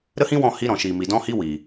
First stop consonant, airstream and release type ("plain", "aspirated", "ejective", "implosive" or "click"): plain